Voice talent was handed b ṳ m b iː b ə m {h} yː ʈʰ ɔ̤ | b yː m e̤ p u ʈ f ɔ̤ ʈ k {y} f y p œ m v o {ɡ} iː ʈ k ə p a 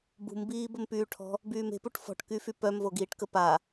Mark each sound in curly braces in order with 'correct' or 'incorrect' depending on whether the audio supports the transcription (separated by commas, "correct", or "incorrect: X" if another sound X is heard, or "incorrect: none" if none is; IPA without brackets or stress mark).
incorrect: p, correct, correct